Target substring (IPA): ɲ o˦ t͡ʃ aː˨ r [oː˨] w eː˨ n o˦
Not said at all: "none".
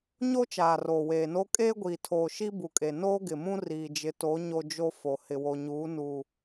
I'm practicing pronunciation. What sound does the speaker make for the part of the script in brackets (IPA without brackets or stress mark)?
oː˨